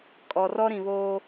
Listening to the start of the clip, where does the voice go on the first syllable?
low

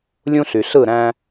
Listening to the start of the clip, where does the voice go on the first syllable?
high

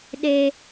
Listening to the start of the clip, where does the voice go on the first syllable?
high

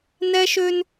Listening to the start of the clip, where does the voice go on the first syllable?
high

